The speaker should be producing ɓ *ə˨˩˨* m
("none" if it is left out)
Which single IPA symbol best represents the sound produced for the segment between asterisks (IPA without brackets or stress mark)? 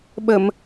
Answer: ə˨˩˨